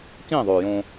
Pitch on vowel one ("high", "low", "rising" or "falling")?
falling